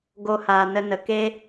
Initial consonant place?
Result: velar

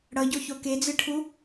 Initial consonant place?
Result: retroflex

